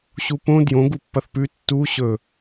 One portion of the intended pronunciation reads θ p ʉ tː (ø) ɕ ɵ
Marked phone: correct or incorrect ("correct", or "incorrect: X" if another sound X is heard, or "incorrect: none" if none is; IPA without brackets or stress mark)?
incorrect: u